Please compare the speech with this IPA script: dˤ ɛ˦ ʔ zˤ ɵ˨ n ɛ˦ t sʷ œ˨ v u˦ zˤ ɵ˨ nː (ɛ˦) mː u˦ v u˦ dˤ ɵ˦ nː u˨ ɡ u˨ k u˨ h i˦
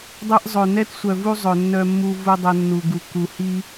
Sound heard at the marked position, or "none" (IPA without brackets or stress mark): œ˦